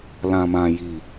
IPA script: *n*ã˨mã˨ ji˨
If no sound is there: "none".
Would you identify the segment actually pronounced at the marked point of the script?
l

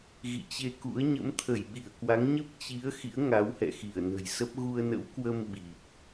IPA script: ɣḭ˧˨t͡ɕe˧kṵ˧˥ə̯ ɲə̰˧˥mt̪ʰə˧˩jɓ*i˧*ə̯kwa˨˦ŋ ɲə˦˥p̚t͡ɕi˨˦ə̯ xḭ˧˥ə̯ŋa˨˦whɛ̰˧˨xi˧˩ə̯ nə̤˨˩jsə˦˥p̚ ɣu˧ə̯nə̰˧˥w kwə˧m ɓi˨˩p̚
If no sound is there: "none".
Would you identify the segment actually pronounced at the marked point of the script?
i˧˩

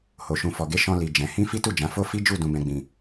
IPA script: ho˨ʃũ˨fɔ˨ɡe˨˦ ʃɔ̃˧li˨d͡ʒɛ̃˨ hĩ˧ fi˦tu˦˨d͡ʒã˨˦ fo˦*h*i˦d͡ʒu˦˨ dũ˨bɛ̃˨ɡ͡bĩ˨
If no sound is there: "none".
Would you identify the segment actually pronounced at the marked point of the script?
f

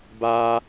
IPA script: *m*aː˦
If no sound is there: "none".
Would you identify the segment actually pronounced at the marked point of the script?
b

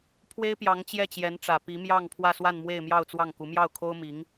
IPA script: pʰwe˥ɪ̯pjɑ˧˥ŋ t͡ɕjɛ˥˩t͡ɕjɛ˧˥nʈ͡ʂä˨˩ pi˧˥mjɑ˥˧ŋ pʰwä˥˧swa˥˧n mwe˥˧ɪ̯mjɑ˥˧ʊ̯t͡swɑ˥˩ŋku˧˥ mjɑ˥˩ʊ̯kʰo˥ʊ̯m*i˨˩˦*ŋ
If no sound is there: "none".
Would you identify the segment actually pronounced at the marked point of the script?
i˧˥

